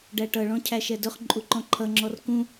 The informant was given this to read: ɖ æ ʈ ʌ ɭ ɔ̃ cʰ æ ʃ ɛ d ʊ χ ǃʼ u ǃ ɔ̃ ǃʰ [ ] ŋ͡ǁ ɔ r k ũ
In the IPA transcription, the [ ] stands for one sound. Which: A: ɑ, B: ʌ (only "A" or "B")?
B